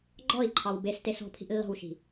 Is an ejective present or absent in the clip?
absent